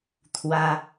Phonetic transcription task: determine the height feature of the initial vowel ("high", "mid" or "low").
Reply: low